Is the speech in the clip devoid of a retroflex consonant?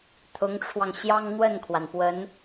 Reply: no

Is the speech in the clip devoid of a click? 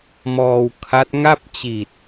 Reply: yes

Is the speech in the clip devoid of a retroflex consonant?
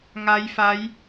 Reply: yes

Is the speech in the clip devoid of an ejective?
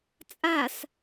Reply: no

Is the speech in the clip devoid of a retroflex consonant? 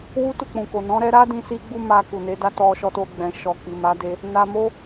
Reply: yes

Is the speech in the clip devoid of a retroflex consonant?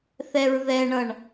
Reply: no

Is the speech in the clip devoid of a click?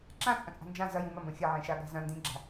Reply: no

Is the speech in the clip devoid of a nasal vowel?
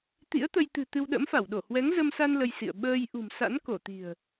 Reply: yes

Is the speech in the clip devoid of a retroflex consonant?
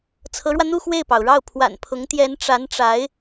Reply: no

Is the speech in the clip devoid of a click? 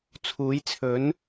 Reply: yes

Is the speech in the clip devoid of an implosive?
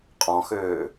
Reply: yes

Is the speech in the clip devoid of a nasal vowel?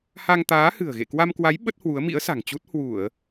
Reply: yes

